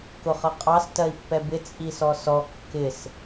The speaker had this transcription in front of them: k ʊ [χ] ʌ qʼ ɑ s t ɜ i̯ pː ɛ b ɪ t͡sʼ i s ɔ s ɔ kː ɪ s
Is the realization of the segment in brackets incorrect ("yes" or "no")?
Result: no